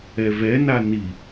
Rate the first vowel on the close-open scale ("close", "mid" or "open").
mid